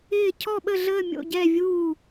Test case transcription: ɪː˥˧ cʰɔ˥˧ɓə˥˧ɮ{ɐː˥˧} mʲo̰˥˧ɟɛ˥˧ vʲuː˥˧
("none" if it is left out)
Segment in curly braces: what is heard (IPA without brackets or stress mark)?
əː˥˧